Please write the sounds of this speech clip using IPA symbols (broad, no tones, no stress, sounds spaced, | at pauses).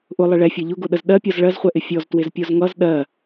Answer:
ʔ ʊ lˠ ɪ ɭ ɛ fʲ ɛ ʎ ʊ ɡ ʊ ɗ ə z ɗ ɜ pʲ ɔ z ɭ ɜ z χʷ ɛ ʔ ɪ fʲ ɔ z t w ɪ z pʲ ɔ z ŋ ʌ z ɗ ɜ